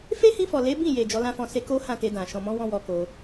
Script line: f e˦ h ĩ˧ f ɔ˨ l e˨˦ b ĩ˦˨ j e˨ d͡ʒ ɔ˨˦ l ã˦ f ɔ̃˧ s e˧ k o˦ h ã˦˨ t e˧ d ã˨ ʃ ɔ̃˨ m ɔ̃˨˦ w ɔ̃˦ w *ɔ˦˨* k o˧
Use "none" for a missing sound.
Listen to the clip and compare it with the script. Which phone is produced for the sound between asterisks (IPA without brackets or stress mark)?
ɔ˧